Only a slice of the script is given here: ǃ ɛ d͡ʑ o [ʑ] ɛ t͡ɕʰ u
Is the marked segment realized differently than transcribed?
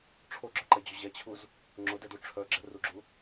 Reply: no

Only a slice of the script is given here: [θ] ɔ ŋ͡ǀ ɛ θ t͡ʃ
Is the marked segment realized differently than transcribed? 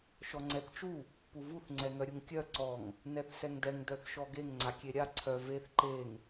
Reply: yes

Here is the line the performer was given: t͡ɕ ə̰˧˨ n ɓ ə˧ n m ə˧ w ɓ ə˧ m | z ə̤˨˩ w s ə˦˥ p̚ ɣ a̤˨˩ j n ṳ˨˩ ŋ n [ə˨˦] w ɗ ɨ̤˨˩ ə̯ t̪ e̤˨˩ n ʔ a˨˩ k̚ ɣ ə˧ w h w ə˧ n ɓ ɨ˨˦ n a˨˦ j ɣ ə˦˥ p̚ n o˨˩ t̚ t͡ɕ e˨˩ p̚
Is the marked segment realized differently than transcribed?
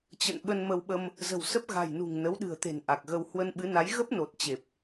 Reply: no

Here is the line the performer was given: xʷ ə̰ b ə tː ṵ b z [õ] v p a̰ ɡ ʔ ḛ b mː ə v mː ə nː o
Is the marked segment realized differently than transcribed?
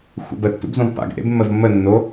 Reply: no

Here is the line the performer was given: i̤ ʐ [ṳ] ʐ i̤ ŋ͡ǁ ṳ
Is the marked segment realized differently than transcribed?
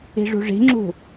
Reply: no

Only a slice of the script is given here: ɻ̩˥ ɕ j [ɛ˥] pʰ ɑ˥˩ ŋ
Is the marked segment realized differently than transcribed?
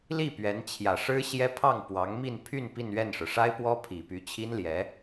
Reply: no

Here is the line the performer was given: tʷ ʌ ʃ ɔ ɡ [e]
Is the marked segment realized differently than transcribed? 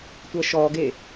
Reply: no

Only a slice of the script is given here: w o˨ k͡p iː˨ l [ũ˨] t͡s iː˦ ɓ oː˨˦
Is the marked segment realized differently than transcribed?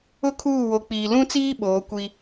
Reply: yes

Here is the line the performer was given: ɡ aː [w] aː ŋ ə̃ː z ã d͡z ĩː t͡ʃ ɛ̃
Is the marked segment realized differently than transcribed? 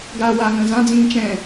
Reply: no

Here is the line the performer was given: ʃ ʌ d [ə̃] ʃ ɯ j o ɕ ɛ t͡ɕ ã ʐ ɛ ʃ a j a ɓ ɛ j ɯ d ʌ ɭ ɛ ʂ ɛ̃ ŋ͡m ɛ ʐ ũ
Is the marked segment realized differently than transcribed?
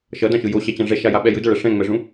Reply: yes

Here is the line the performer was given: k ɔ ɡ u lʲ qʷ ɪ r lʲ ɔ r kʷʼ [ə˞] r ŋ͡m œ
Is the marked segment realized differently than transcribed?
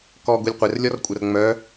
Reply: yes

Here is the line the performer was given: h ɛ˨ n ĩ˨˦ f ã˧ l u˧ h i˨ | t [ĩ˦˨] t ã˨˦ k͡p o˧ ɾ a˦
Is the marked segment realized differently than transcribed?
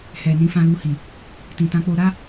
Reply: yes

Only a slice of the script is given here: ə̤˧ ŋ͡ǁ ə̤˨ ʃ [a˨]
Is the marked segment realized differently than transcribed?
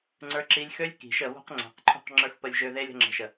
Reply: yes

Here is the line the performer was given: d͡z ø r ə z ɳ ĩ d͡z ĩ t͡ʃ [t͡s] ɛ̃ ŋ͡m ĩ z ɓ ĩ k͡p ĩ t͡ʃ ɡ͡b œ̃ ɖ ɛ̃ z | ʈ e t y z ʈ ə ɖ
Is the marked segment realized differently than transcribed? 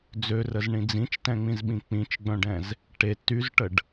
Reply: yes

